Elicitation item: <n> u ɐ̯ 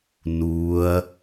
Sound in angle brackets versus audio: correct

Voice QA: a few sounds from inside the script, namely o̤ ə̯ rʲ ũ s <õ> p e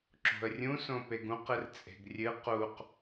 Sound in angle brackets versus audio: correct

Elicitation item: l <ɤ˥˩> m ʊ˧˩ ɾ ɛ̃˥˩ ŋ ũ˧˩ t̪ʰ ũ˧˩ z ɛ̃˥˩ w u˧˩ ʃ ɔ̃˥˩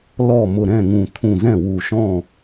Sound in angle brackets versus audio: incorrect: ɔ˥˩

